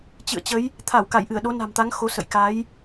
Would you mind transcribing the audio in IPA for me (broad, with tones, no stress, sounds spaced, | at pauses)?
t͡ɕ ɨ̰˧˨ ə̯ t͡ɕ ə˨˦ j | t̪ʰ a˧˩ w k a˧˩ j ʔ ɨ˧˩ ə̯ ɗ o˨˦ n a̤˨˩ m t̪ a˨˦ ŋ x o˨˦ s ə̰˧˨ j k a˨˦ j